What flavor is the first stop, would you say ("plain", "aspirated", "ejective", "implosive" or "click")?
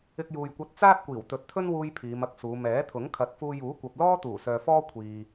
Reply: plain